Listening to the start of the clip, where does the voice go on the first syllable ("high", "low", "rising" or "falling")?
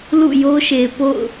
falling